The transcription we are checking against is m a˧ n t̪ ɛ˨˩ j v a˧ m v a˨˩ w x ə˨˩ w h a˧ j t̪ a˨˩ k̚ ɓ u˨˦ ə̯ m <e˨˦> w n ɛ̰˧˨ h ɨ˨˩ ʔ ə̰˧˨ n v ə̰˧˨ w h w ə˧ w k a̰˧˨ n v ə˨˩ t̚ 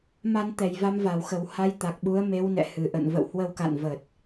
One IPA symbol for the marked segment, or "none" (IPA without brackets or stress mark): e˨˦